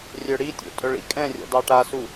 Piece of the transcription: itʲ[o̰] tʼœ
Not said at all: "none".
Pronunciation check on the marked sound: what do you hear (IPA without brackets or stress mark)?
o̰